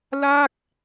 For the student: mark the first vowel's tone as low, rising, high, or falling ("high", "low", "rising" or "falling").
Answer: falling